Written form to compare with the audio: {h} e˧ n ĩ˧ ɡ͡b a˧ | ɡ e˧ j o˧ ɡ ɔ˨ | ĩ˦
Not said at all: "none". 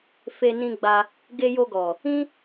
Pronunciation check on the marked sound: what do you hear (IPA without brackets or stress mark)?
f